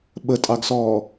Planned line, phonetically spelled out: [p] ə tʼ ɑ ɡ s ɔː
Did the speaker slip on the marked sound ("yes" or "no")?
yes